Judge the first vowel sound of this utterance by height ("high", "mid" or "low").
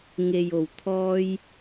mid